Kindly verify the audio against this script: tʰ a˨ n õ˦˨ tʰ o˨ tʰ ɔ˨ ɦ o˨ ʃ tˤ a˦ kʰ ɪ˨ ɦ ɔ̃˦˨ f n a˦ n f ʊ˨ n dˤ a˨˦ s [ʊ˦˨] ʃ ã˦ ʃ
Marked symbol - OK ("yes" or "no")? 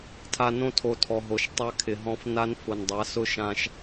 no